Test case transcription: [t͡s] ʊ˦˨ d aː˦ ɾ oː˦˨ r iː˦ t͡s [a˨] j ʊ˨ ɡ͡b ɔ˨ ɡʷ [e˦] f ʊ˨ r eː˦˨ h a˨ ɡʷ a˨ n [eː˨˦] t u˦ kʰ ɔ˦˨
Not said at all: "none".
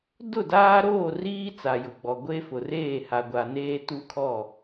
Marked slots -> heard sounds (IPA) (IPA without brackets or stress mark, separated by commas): d, a˨, e˦, eː˦